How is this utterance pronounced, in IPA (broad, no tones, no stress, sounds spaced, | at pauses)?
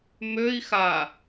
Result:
m ø i̯ x a